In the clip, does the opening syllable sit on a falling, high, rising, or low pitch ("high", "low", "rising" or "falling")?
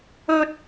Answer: high